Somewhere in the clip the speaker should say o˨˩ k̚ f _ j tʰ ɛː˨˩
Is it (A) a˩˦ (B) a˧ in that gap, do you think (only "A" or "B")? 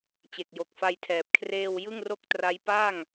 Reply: B